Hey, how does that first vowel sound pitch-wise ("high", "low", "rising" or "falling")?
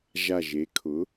low